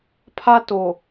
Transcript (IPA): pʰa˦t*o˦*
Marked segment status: incorrect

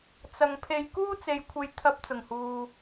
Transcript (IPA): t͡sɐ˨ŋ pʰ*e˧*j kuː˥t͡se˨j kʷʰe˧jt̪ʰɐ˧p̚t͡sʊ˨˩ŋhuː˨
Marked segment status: correct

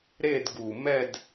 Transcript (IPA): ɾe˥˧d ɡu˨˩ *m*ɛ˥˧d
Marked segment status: correct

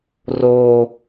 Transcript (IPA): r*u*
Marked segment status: incorrect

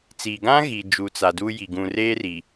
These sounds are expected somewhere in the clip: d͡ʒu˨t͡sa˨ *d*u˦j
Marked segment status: correct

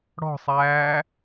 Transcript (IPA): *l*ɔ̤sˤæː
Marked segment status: incorrect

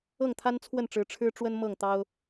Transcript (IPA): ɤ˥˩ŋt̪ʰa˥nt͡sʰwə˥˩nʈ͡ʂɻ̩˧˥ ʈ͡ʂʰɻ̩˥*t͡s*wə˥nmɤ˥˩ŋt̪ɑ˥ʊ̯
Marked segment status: incorrect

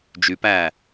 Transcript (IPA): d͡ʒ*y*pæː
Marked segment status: correct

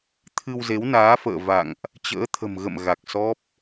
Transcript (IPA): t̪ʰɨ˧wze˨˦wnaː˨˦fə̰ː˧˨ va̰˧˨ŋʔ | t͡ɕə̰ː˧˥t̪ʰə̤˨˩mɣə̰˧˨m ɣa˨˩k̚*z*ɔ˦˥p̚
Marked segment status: incorrect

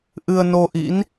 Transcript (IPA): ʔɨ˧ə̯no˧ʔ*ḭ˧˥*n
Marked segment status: correct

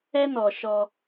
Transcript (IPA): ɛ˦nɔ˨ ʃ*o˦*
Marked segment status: incorrect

